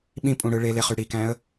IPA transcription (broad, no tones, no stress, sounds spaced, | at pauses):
ɓ ĩ pʼ ũ ɽ ɯ ɭ e l e χ y ɽ i k æ̃ ə̯